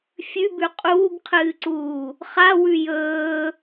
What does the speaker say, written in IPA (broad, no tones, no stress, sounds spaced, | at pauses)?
fʲ ʉ b ʉ qʼ uː ɡ qʰ ɨː ǀ uː | χ a w ʉ j ɵː